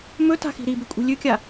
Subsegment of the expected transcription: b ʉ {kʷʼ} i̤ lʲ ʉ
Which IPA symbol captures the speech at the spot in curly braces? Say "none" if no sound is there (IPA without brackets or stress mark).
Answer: kʷʼ